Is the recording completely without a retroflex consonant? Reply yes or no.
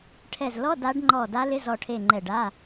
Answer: no